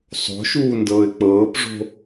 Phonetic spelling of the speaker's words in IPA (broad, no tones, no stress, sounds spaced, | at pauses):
sˤ o̤ ʃ uː n d ɤː ɪ̯ k͡p ɤː p ʐ o̤